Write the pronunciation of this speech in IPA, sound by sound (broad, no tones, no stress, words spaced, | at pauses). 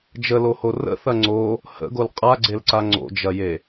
d͡ʒəloho rə̰θɐ ŋ͡ǀo | hə̰ɡol qʼaɡ͡ǀelǀa ŋ͡ǀo̰d͡ʒɐje